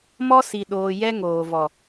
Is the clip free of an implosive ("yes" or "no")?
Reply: no